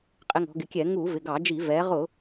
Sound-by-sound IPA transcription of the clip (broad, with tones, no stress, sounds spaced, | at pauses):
qʼ ɪ˧ ŋ ɔ̤˩˧ ɡ ɪ˩˧ kʲ ɛ˧˩˧ ŋ u˧˩˧ v ɪ˩˧˩ ɡ ɑ˧˩˧ d͡ʒ i˧˩˧ v ɛ˩˧ ʁ ʊ˧˩˧